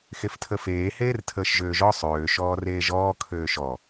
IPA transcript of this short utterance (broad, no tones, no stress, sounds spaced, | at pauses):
x e f tʰ ə f eː h eː r tʰ əː ʃ ʒ øː ʒ ɔ sˤ øː ʃ ɔː r eː ʒ ɔː kʰ øː ʃ ɔ